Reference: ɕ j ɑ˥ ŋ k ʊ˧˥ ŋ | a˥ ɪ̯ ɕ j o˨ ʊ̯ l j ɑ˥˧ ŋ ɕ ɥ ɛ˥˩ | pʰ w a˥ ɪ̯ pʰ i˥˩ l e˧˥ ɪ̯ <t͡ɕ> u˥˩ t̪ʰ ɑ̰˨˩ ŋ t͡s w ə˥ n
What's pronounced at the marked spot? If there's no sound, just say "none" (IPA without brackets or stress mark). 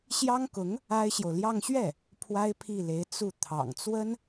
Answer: t͡s